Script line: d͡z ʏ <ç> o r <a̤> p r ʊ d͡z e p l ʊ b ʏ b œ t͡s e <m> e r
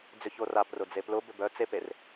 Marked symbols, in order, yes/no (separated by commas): yes, no, no